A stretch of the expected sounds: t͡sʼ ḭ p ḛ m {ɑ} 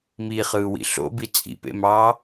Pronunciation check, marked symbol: incorrect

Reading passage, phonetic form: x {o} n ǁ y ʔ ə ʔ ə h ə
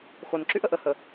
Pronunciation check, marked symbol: correct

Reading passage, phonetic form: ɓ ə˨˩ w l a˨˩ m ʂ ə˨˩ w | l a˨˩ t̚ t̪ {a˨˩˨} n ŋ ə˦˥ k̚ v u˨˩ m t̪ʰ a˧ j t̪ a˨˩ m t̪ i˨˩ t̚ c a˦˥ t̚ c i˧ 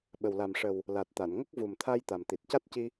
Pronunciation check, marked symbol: correct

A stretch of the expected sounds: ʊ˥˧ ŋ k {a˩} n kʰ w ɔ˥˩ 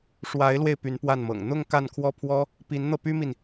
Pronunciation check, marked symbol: incorrect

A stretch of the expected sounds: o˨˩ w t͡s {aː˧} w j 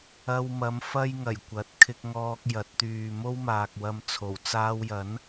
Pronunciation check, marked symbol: correct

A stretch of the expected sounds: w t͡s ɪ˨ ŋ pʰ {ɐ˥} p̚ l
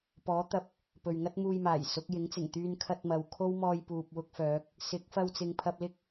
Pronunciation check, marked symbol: incorrect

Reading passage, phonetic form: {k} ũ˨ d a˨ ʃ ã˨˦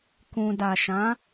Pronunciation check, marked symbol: correct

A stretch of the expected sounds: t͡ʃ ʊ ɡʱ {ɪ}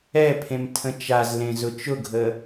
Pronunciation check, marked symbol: incorrect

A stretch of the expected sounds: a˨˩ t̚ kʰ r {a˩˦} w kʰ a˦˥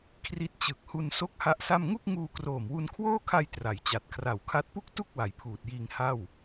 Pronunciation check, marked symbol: incorrect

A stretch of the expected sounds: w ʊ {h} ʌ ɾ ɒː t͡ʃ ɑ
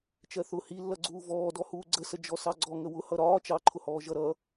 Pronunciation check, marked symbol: correct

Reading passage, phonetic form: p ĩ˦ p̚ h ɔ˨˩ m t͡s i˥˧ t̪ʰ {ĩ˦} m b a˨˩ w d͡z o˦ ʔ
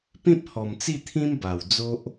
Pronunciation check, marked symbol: correct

